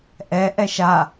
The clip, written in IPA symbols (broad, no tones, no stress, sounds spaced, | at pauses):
ʔ ɛ ʔ ɛ ʃ a